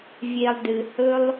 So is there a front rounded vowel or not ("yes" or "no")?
no